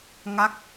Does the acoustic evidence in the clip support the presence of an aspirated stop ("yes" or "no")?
no